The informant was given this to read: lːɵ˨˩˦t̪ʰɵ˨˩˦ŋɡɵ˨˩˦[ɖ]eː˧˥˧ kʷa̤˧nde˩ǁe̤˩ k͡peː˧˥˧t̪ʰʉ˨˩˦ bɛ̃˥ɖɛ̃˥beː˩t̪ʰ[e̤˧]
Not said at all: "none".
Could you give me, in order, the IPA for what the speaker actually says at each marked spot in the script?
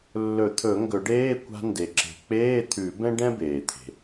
ɖ, e̤˩

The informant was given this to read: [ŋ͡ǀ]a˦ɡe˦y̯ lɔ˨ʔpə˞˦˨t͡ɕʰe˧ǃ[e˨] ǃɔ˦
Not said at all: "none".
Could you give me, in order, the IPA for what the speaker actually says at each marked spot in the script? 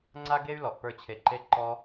ŋ͡ǀ, e˦

